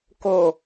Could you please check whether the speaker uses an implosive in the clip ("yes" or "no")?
no